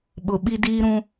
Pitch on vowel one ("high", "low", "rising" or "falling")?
low